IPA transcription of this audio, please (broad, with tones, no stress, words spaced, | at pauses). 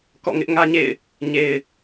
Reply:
kɔ̰˦˨ ŋɪ˦ʔŋä˦ɲḛ˦˨ɪ̯ | ɲe˨ɪ̯